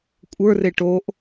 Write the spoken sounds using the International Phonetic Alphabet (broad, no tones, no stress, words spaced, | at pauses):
kʷʼə˞re ʈoʔ